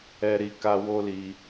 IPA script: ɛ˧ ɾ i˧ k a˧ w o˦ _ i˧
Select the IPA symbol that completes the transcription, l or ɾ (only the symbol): l